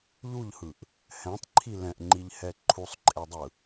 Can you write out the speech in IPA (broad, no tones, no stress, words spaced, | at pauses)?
ʎuʎhɯʔ | hɛ̃tˤǃʰi lɛ̃ʔŋ͡ǃiʎhɛ ǃʰusˤǃʼedˤɯ